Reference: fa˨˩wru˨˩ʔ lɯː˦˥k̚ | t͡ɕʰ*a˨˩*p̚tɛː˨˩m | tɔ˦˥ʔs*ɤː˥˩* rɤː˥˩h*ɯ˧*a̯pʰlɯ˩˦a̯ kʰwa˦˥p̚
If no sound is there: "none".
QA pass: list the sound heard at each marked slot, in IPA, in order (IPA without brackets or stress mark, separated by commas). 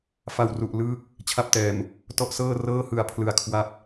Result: a˦˥, ɤː˥˩, ɯ˨˩